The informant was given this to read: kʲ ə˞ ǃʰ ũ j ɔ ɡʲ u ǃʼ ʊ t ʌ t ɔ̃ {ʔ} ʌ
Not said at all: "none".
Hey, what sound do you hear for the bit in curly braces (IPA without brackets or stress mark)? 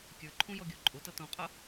qʼ